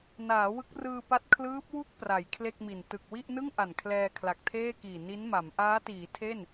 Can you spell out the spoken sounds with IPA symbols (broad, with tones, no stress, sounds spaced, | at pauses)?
n aː˩˦ w ɯ˦˥ k̚ r ɯː˧ p a˦˥ t̚ kʰ l ɯː˦˥ p̚ w u˥˩ k̚ p r a˩˦ j kʰ l e˥˩ k̚ m i˨˩ n t ɯ˨˩ k̚ w i˥˩ ʔ n ɯ˥˩ ŋ ʔ a˨˩ n kʰ l ɛː˧ kʰ l a˨˩ k̚ tʰ eː˥˩ k iː˨˩ n i˦˥ n m a˩˦ m ʔ aː˦˥ t iː˩˦ tʰ e˥˩ n